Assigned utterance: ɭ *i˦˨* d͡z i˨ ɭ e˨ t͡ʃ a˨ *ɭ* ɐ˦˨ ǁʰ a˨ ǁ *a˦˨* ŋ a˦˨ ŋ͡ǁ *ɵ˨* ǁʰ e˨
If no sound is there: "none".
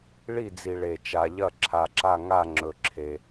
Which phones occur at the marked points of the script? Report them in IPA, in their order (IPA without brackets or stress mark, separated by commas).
i˦˨, ʎ, a˦˨, ɵ˨